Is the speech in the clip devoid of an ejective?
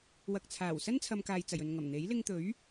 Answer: yes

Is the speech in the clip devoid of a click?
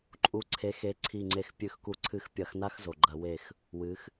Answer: no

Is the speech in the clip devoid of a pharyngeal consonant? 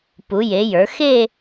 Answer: yes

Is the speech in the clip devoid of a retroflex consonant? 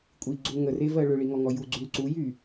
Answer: no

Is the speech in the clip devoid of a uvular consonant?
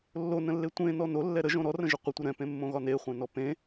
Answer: no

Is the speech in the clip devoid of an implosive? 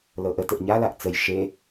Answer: yes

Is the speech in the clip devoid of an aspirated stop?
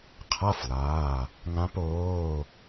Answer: no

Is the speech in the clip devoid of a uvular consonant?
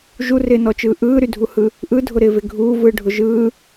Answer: yes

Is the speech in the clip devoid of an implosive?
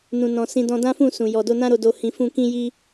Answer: yes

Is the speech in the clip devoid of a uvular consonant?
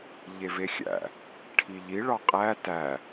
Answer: no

